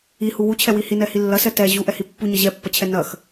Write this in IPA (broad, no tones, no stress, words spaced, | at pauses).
ihu wut͡ɕʰɛwi hinɛhi lːɐsɛ tɛ ʑuʔɛhi pːuɲɐ ʑɛpːɐt͡ɕʰɛ nɐx